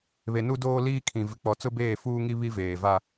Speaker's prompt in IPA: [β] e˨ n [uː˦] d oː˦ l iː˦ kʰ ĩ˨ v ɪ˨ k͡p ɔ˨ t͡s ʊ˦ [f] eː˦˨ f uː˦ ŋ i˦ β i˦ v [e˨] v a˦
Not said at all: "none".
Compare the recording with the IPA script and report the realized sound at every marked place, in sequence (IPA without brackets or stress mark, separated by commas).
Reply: β, u˦, b, eː˨